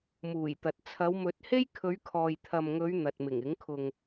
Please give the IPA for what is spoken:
muː˨˩jt̪ɐ˨t̚ t͡sʰɐ˨˧wmɵ˨˥t̚he˥j kʰɵ˨˧ɥkʰɔː˨jt̪ʰɐ˨mŋɵ˨˧ɥ n̪ɐ˨t̚mɪ˨˩ŋɪ˨˥ŋ kʰʊ˨ŋ

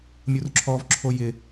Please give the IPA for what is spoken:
mʲurǁʰɔvǁʰo jɪ

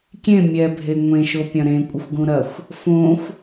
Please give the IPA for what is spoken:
kʲẽ mʲɛbʱe ŋʷẽʃo pʲɐ̃ɾẽ kʷʼɨxʷɡũɾɐxʷ | fõxʷ

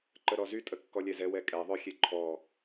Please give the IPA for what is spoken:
ǃəɾɔzy tʼəkːɔlʲɛzɛ wɛkʼɛ ðˤœxʲeǃʰɔ

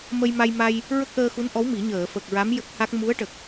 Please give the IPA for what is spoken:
mə˧jma˧jma˧j | ɹə˦˥k̚ʔəː˧xu˧˥nʔɔ˧˥w mi˨˩˦ɲəː˨˩˨ fə˨˩k̚ɹa˧˥m jə˦˥k̚ha˦˥k̚ mu˧˥ə̯ʈə˨˩k̚

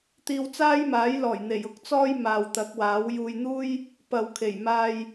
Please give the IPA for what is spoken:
t̪iː˧wt͡saː˥jmaː˨˥jlɔː˨˩j n̪e˨˩jʊ˥k̚t͡sɔː˥j maː˨wt̪ɐ˨˥k̚waː˨˥w juː˨jn̪uː˥j | pɐ˨wkʰe˨˩j maː˧j

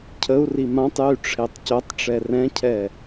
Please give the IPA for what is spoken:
cʰəu̯ri mãtˤjy ʈ͡ʂʰetˤcœtˤʈ͡ʂɛ rɛ̃cʰɛ

